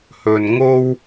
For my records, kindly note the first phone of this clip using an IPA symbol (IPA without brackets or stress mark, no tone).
h